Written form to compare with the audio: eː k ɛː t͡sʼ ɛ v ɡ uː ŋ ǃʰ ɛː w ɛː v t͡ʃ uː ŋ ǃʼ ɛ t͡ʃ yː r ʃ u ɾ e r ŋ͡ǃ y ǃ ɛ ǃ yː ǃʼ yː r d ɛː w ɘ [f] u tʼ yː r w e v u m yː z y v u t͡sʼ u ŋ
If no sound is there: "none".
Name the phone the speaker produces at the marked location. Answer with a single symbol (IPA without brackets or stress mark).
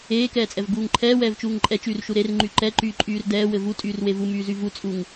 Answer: v